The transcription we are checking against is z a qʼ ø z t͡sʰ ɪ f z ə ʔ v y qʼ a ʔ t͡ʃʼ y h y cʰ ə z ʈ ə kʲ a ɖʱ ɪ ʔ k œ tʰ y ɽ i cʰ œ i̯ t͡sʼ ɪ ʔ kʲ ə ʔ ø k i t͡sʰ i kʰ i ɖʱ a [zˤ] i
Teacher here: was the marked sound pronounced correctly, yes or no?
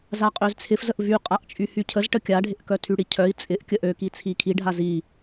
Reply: no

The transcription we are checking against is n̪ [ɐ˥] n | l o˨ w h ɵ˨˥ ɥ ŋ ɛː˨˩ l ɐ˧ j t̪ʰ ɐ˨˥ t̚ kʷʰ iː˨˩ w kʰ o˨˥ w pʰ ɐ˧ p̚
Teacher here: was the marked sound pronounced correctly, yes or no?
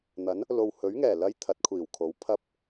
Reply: no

